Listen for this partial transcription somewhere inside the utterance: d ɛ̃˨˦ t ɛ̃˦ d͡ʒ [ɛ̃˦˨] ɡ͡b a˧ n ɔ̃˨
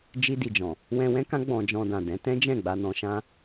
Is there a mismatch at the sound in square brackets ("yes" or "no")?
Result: no